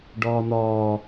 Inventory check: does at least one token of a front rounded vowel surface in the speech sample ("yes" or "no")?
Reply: no